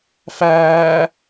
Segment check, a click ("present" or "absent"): absent